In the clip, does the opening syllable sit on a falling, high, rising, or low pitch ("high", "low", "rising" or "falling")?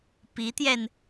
rising